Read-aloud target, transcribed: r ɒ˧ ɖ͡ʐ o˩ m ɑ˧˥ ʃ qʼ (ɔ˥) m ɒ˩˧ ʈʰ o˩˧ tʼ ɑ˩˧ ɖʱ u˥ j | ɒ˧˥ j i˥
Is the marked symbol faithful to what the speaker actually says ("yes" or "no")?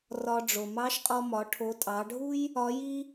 no